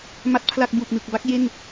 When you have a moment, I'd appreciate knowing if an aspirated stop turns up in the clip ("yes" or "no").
yes